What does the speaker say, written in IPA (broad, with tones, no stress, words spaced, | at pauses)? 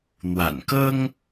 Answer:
n̪wa̰˨˩nkɤ˦ŋ